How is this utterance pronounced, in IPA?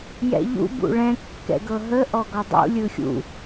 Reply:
jɛ̰ʎṵ bṵɭɛ̃ kːɛ̰ɡɤɦə ʔɔɡɔdˤṵ lʲɯxʲṵ

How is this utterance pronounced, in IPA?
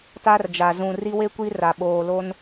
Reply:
ta˦rd͡ʒa˨ zũ˨ ri˦we˦kʷi˦ ra˨ ɓoː˨lo˦n

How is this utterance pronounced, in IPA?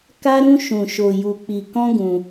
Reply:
ka˦ɾũ˦ ʃũ˧ʃo˧ju˧k͡pi˧ kɔ̃˦ɡũ˧

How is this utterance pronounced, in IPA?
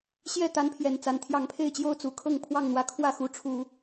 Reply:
ɕjɛ˥˨ t̪a˦npʰjɛ˨˩nt͡sa˨˦n t̪ʰjɑ˨˩ŋpʰe˥˨ɪ̯t͡ɕjo˥˨ʊ̯ t͡su˨˩kʰɤ˥˨ŋ pʰwɑ˥˨ŋn̪wä˨˦ kʰwä˥˨xu˨˦ʈ͡ʂʰu˨˩

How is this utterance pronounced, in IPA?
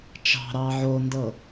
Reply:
t͡ʃɑ̤ɾɑ ʕondɤ

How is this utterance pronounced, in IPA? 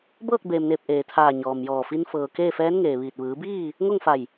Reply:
bɤː˥˨k̚beː˩mneː˧˩p̚ ʔeː˩t̪ʰaː˧˩ ɲɔː˩mjɔː˧˩fi˧n fɤː˩ keː˥˨fɛː˧˥nŋeː˩ ʋiː˧˩t̚ ʋɯː˩˧biː˥˨ | ŋo˥˨ŋfa˧˩j

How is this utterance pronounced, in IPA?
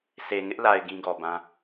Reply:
sʰe˨ŋɪ˦ʔla˨ɪ̯ ɡĩ˦ɡɔ˨bã˦

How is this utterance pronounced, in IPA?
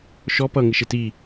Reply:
ʃɔ pʌ ŋɪʃɪti

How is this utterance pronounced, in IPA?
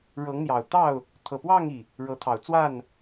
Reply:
ɻɤ˨˦ŋn̪jɑ˨˩ʊ̯t̪ɑ˥˨ʊ̯ | t̪ʰɤ˨˩pwɑ˥˨ŋi˩ | ɻɤ˨˦t̪ʰɑ˨˩ʊ̯t͡swa˥˨n

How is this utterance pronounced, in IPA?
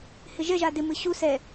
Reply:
hɪʒɛʒa dɪmɨ ɕu sɛ

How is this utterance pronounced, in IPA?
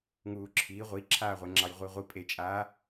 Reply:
ŋuːǁʰiː ʁʷiǁʰaːʁʷeŋ͡ǁɑj ʁʷiʁʷi pʼet͡ʃʼaː

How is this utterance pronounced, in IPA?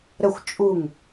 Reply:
ɾəxʷ t͡ʃʼuŋ

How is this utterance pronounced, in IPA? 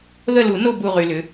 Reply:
ðə˦˨lu˨˩˦no˦˨ bu˦˨ʁy˨lʏ˩˥

